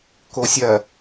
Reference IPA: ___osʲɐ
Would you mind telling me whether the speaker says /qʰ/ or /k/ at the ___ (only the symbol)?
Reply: k